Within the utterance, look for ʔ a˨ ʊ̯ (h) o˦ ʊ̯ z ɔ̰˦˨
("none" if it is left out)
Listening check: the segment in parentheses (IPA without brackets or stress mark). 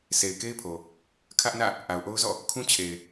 ʔ